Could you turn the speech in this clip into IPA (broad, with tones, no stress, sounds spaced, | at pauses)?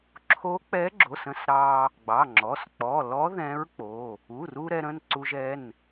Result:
ǁʰ o˧˥ k͡p ɛ˧˥ ɡ͡ǁ o˩˧˩ s ə̃˧ s ɾ ɑ˧ | ɡ͡b ɑ˩˧˩ ŋ͡ǁ ɔ˩˧˩ s k͡p ɔ˩˧˩ l ɔ˧˥ ð ɛ̃˧˥ ɹ k͡p o˩˧˩ | u˩˧˩ r u˧ ɾ ɛ˧ ɾ ə̃˩˧˩ n ǀ u˧ ʒ ɛ˩˧˩ n